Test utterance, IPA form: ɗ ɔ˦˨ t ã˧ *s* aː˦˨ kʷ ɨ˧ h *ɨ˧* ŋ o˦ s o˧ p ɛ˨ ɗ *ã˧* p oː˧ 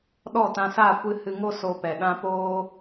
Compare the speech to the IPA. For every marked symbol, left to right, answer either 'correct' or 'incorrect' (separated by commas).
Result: correct, correct, correct